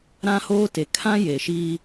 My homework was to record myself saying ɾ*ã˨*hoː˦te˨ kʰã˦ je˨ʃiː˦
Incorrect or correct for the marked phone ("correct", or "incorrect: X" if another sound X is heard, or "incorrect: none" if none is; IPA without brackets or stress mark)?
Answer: incorrect: ã˦